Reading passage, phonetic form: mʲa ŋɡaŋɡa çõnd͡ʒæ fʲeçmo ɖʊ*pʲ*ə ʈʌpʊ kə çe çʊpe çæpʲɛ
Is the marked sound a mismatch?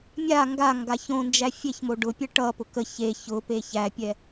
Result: no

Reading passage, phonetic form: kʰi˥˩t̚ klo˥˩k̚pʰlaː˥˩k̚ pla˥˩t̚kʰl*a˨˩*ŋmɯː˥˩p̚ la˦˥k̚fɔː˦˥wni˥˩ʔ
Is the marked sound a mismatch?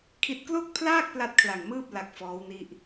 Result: no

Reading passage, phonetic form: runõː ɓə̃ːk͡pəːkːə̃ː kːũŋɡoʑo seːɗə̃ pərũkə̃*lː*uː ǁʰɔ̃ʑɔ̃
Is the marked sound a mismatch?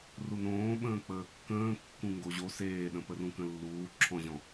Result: no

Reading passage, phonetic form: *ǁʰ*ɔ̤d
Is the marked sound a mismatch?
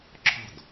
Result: no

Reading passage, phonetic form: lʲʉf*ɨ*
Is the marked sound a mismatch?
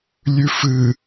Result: no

